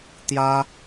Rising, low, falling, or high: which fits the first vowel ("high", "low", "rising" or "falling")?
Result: high